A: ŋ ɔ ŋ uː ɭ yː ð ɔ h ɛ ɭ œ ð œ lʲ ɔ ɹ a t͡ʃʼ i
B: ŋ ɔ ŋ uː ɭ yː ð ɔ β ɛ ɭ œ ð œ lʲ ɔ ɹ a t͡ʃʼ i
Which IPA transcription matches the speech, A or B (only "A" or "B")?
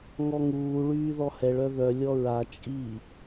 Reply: A